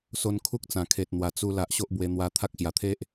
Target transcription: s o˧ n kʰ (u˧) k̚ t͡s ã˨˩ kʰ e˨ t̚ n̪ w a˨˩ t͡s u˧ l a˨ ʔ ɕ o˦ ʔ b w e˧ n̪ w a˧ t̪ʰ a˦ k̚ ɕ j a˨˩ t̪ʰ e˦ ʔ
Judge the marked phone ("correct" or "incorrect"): incorrect